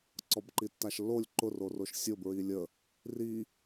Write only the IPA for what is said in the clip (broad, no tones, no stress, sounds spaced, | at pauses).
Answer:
ǀ ɔ b ǃ i tː a ʃ lː o lʲ ǃ ʊ r o r o ʃ sʲ ʊ b ɹ i lʲ ə | r i